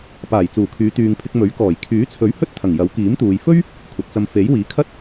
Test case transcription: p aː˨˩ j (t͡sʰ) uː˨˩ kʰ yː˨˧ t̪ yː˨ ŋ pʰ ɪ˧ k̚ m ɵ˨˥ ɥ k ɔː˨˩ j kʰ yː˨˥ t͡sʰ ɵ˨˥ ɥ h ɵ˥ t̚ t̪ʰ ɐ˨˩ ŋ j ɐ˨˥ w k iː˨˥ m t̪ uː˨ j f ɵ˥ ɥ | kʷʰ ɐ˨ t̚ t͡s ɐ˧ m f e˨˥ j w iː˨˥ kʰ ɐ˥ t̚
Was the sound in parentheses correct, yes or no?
no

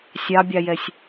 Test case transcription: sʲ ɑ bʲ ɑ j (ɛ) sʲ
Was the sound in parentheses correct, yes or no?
yes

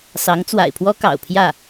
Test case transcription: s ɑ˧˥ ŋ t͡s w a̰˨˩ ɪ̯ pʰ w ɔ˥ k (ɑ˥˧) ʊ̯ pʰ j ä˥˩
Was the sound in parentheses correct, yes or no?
no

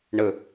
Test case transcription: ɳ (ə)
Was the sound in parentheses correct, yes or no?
yes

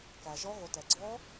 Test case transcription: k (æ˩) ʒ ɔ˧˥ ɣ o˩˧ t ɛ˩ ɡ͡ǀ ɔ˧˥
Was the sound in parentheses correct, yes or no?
yes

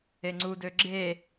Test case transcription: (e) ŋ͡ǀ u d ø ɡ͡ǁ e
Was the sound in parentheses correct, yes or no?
yes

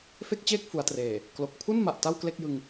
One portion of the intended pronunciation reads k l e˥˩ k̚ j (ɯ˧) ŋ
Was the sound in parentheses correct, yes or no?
yes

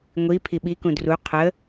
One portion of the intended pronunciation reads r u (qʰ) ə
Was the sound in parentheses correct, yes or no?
yes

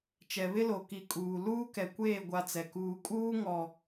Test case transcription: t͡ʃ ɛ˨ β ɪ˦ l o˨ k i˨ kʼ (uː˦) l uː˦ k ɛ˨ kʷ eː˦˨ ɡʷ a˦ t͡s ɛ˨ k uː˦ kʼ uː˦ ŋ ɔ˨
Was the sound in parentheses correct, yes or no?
no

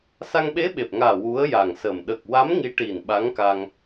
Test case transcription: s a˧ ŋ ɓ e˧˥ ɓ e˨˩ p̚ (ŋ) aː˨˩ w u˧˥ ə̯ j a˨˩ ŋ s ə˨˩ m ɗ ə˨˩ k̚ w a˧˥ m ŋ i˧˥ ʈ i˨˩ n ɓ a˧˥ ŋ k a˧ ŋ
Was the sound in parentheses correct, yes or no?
yes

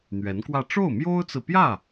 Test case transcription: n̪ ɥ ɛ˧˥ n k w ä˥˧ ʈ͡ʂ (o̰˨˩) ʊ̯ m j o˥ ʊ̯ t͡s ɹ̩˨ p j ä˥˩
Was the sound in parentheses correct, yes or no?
no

